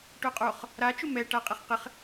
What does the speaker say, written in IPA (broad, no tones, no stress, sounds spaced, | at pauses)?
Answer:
ʈ o qʼ o χ | ɾ a t͡ʃ ʊ m ɛ ʈ a qʼ ɪ χ q ɪ χ